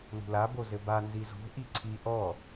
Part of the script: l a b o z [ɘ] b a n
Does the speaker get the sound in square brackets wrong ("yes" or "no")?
no